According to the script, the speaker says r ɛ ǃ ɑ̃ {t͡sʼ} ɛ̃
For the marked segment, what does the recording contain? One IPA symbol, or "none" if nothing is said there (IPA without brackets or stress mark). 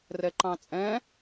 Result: t͡sʼ